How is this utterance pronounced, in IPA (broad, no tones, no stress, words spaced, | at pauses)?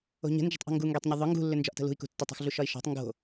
o̤ɲə̤nd͡ʒə̤tˤʔo̤ ŋɡuŋɡetˤɲʏ ðˤʏ ŋɡṳlːʏ nd͡ʒɒʔtə̤lṳi̯kṳ tːotˤṳxɮu ʃɒi̯ʃɔ̤tˤ ŋɡo̤